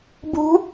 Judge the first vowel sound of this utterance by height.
high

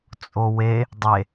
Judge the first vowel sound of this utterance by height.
mid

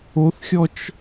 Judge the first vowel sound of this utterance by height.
mid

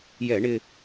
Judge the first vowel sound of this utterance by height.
mid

